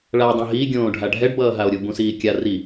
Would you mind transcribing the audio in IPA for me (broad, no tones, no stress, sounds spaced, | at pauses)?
ɭ a dˤ ũ ɦ i ɡʲ õː ɖʱ a ɖʱ ɛ ɖ b ʌː ɦ a o̯ ɾʲ u b ũ s iː kʲ a r i